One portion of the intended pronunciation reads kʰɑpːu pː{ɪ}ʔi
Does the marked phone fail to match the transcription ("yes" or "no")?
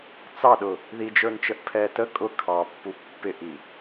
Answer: no